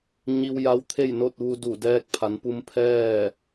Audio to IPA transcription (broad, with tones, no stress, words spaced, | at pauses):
ɲi˧w ja˧˥wt̪ʰe˥˨jno˥˨t̚ ʋu˧du˧˩ dɛː˧k̚pʰa˩˧npu˧m pʰɛː˥˨